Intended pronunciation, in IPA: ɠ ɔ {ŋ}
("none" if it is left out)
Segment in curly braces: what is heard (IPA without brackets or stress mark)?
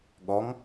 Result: ŋ